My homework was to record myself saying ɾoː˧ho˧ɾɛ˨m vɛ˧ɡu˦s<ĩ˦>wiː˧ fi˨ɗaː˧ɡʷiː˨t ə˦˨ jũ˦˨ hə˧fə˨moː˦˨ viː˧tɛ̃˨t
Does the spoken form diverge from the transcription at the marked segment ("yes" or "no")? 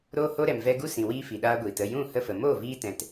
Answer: yes